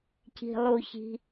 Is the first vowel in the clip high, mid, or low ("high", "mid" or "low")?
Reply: high